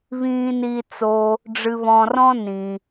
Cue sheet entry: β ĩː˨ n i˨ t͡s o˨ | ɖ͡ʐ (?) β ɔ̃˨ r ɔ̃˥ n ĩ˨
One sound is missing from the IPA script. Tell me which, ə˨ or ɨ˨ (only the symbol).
ɨ˨